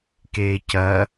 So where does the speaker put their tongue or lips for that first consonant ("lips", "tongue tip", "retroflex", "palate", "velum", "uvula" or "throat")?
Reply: velum